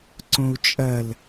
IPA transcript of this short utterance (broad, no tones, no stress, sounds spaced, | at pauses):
ǀ õ u̯ t͡ʃʼ ɐ l